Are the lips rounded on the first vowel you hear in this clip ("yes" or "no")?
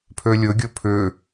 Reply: yes